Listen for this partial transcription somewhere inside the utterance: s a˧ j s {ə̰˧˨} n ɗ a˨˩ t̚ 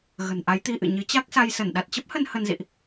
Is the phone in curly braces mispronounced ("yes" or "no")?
yes